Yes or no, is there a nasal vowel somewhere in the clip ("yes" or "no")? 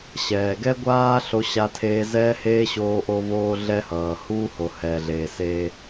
no